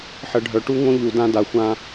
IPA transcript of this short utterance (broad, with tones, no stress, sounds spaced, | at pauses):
ħ ə˨ ɖʱ œ˨ ʈ u˦ ŋ õ˦ ʎ u˨ d ã˦ d a˨ xʷ ã˦